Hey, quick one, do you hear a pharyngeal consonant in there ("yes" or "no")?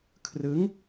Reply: no